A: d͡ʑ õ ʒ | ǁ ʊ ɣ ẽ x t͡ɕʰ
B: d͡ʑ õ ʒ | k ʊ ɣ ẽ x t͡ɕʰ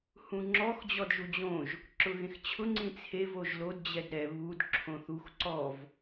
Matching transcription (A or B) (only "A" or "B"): A